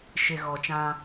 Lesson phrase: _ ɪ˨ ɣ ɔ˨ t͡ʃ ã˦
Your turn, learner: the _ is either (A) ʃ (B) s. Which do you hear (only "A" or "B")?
A